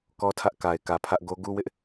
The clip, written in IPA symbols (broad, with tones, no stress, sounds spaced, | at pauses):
k ɔ˦ tʰ ä˦ ʔ k a˨ ɪ̯ k ä˨ pʰ ä˦ ʔ ɡ o˦ ɡ u˦ w ɪ˦ ʔ